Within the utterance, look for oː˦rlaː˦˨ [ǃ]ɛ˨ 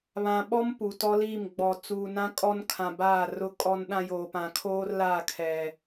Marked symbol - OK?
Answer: no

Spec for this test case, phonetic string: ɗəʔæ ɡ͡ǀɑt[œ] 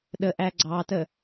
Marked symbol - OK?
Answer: no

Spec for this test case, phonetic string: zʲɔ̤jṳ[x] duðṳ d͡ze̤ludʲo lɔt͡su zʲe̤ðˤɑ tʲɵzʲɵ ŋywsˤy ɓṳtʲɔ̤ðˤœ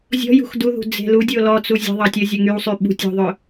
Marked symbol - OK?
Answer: yes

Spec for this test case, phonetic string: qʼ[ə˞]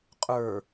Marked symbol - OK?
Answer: yes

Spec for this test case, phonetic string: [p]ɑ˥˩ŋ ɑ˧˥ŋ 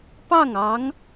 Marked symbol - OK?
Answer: yes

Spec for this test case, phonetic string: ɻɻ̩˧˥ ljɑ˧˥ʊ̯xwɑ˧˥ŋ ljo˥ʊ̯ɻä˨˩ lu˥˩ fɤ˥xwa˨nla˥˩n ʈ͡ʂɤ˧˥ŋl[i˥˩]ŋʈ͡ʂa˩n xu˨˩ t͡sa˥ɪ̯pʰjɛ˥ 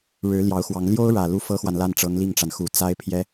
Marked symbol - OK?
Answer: yes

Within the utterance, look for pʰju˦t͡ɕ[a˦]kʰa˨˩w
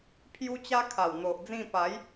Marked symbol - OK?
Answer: yes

